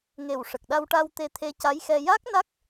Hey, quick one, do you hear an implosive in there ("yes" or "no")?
yes